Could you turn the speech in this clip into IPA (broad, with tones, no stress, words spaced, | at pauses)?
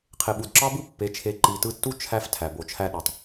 qʰe˨ɓu˨d ǁɑ˦bɯ˦ pːe˨˦t͡ʃʰe˧ ǃi˨tɯ˧tːu˦ t͡ʃʰæ˧f tʰæ˨bo˨t͡ʃʰæ˦ɗo˨tˤ